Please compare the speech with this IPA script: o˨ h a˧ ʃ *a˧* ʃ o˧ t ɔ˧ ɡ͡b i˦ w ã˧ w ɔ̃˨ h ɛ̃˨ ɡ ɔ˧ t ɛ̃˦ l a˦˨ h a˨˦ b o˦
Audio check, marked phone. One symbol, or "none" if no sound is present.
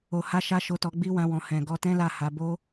a˧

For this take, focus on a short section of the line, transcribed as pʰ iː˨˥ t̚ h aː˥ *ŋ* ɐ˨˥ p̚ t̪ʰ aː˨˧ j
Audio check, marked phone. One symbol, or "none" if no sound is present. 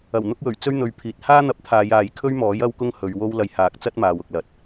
n̪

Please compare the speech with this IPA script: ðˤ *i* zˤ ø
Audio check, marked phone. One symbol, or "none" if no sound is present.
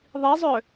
i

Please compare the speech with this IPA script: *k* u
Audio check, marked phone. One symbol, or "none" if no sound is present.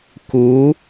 k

